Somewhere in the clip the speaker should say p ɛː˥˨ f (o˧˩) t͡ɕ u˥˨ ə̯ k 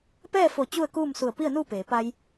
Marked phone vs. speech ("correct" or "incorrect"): correct